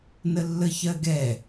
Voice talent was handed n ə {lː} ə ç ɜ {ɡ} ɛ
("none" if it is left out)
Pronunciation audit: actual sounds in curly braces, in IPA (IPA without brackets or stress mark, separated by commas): lː, ɡ